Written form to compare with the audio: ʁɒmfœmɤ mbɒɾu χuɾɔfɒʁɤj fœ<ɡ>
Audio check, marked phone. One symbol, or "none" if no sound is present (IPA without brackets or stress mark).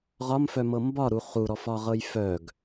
ɡ